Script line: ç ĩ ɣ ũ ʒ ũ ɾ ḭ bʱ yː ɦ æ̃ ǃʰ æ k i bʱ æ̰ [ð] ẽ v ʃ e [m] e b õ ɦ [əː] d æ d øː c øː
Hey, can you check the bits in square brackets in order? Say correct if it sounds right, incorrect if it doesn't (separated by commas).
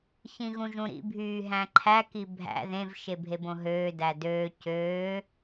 correct, incorrect, incorrect